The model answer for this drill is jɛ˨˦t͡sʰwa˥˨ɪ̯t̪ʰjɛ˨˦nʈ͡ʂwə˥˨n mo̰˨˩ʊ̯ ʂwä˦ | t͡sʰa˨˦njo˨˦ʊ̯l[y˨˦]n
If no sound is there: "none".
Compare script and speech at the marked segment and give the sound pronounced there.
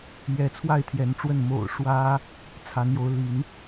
i˨˦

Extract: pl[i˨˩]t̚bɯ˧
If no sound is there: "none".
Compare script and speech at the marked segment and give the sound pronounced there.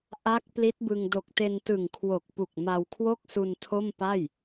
i˦˥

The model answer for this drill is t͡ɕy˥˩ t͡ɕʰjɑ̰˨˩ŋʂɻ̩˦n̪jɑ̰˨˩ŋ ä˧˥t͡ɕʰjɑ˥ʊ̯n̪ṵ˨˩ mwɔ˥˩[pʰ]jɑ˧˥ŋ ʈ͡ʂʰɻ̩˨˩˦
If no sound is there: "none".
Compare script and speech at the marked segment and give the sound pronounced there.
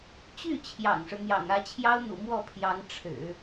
pʰ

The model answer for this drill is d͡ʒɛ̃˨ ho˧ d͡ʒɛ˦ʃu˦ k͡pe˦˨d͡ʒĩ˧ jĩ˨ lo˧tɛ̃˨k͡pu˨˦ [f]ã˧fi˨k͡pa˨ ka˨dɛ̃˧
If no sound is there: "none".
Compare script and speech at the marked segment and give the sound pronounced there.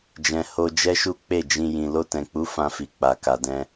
f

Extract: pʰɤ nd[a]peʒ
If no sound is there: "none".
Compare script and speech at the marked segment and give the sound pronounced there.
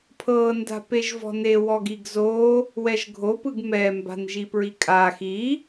a̤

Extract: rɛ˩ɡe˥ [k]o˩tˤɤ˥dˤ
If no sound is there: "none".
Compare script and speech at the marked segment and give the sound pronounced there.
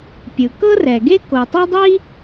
k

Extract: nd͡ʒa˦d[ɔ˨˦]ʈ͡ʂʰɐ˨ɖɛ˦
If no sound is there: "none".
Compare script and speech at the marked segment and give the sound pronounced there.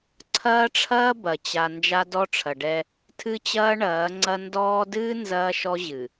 ɔ˦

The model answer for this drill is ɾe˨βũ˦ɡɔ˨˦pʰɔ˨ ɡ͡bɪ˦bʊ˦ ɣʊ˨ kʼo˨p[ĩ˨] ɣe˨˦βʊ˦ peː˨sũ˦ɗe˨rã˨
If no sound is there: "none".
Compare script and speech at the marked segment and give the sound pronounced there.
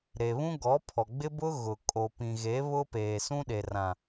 ĩ˨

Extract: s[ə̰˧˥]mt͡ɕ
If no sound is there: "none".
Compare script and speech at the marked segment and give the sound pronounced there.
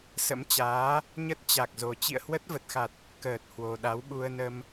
ə̰˧˥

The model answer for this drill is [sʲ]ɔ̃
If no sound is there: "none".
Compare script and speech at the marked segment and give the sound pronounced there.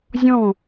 zʲ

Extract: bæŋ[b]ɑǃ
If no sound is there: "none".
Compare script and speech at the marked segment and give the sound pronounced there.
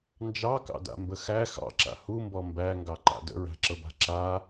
ɡ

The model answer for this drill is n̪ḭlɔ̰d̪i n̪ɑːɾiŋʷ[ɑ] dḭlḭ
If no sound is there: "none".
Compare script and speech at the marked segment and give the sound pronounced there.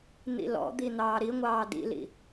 ɑː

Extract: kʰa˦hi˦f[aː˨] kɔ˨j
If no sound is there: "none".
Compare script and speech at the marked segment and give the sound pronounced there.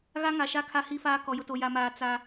aː˦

